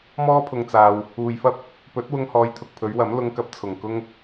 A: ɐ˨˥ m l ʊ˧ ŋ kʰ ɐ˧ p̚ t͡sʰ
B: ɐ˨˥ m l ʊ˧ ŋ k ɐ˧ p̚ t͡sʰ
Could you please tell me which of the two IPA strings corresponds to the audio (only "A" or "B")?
B